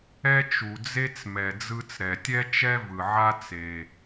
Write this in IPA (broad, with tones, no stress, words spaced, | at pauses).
ɛ˥t͡ʃu˩d͡ze˥t͡smɛ˩ d͡zɯ˧t͡sɾɛ˩tʲɛ˥ t͡ʃɛ˥vɯ˩ ʕa˥ t͡se˩